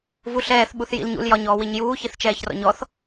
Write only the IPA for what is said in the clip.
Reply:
v u ɬ ɛː θ ɓ u θ j ḭ l ɲ ṵ l j ɒ ɲ ɔː w i ɲ j uː ç i θ t͡ʃ ɛː ç r ɔ̰ ɲ ɔ θ

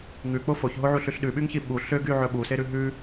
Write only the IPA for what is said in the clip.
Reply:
ŋ ʉ k͡p o f o ç ɦ o ʕ u ɬ ʉ ɬ ɗ ʉ ɓ y ŋ ç i ɓ u ɬ ø ɡ y ʕ ɵ ɓ u s e ɾ ʉ ɦ ʉ

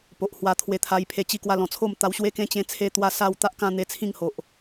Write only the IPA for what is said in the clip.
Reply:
p o˨ ʔ h w a˧ t̪ʰ w e˧ t̪ʰ a˧ j pʰ e˧ t͡ɕ i˧ k w a˧ l ɔ̃˨˩ t͡sʰ o˥˧ m t̪ a˧ w ɕ w e˦ k ẽ˦ t͡ɕ ẽ˧ t͡sʰ e˧ t̪ w a˧ s a˥˧ w t̪ a˦ ʔ k ã˦ n̪ e˧ t͡sʰ ĩ˥˧ ŋ h o˨ ʔ

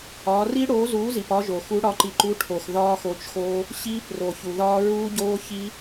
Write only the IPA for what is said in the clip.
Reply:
ɒː˨˦ r i˦˥ ɽ oː˨˦ z uː˨˦ z i˩ p ɒ˦˥ ʒ o˩ x u˨˦ ɽ ɒ˨˦ ǃ i˩ ǃ u˨˦ ʈʰ o˩ x ð ɒː˦˥ x o˨˦ t͡ʃ x oː˦˥ | ɕ iː˦˥ p r o˩ ç u˩ ð ɒː˦˥ ɹ uː˦˥ ɟ oː˦˥ ç i˦˥

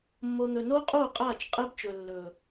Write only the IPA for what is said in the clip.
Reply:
mː o˨ n̪ ɵ˨ n oː˦ qʼ oː˦˨ qʼ aː˦˨ t͡ʃ qʼ əː˦ b t͡ʃ ɵ˨ lː ɵː˨

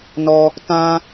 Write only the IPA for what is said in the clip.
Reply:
n ɔ˧ | t ã˧

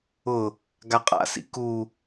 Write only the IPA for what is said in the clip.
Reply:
ʊ | ɡ a qʼ a̰ s ḭ k u

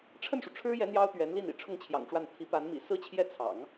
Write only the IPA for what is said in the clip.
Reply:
ʈ͡ʂʰ ə˥˩ n ʂ u˩ ʈ͡ʂʰ ɻ̩˥ j ɛ˧˥ n̪ j ɑ˥ ʊ̯ t̪ ɥ ɛ˧˥ n l i˥˩ n ḭ˨˩ ʈ͡ʂʰ ʊ˥˩ ŋ t͡ɕʰ j ɑ̰˨˩ ŋ ʈ͡ʂ w a˥˩ n t̪ʰ i˧˥ p a˧˥ n m ḭ˨˩ s ɹ̩˥˧ t͡ɕʰ j ɛ˥˩ t͡sʰ ɑ̰˨˩˦ ŋ

